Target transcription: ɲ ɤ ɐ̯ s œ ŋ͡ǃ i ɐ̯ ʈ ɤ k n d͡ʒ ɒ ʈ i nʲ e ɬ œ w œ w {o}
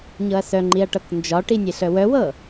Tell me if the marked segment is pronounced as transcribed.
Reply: no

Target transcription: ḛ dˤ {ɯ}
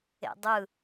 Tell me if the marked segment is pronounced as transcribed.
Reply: yes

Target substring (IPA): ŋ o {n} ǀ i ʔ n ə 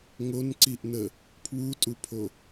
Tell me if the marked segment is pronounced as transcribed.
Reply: yes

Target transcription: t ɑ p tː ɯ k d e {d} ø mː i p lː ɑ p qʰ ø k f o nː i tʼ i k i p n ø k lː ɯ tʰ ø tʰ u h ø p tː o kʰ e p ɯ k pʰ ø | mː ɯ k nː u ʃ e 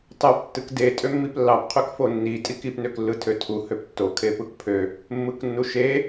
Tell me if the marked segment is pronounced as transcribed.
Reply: no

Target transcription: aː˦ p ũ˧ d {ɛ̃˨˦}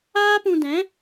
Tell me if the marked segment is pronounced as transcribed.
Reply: yes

